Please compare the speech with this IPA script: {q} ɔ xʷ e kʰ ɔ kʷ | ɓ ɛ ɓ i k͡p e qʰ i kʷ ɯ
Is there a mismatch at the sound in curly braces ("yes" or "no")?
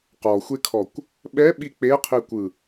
no